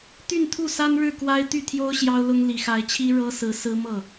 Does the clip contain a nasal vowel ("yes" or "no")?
no